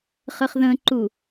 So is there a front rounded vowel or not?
no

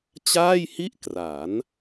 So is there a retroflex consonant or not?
no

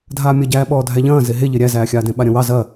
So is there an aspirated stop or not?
no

